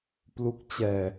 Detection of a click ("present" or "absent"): absent